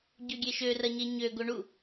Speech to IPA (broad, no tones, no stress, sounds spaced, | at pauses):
ɟ ø ɡʲ e ʃ ø r ɐ ɲ e ɲ ø ɡ o ɳ u